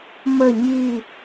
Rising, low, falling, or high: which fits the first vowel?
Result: falling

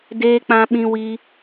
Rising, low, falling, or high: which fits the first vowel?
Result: high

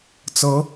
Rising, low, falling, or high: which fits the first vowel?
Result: rising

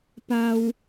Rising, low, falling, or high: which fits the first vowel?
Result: low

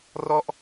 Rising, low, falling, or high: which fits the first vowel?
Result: falling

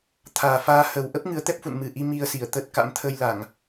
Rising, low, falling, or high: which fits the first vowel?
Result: low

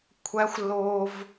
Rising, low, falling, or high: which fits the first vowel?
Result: rising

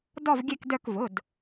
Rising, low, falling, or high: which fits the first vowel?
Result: falling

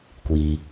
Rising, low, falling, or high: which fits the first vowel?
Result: low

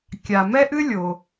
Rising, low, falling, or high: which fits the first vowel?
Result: low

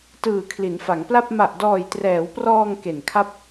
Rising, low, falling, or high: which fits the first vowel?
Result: low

